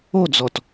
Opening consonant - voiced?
yes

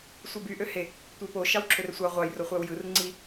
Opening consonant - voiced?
no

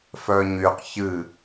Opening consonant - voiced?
no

